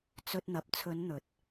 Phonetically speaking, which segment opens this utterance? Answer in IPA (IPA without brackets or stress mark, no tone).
t͡s